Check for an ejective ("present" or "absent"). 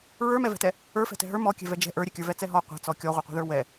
absent